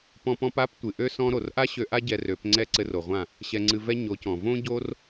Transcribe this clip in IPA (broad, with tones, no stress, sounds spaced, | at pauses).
p ɔ̃˧ p ɔ̃˧ p a˦ p tʷ ɨ˨ ʔ ø˦ s ɔ̃˦ ɾ o˨ r ʔ a˦ ɕ ø˧ ʔ a˦ ɟ ɛ˧ r ø˨˦ p ŋ͡ǀ ɛ˦˨ ǀ ɘ˧ r o˨ ʁʷ ã˦˨ | ɕ ɛ˧ ŋ͡ǀ ɨ˧ v ɛ˦ ɲ o˨˦ c ɔ̃˨ v õ˦ ɟ o˦ r